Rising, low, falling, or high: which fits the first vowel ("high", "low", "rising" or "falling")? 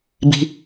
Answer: high